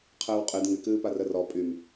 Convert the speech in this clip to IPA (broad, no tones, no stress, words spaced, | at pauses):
qʰəːwqʼɨd ŋɪkɨːpa rərɔ pʼym